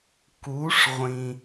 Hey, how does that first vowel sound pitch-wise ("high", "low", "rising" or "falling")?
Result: rising